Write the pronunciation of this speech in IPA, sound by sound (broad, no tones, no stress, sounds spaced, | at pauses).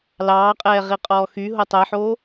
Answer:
l ɑː qʼ ɛː ʁ i qʼ ɔː x y ɦ o tˤ ɛ ħ oː